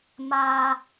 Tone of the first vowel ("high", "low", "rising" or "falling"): high